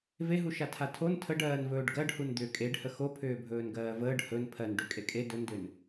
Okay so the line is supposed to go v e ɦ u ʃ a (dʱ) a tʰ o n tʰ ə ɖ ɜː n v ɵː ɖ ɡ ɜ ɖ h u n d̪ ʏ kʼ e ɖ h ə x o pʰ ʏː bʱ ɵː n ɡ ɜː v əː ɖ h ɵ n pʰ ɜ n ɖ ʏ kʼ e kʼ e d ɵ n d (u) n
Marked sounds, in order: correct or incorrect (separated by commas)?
incorrect, incorrect